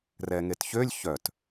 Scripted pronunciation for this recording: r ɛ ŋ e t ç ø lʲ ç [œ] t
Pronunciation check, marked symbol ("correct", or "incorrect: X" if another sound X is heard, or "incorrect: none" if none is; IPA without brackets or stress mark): correct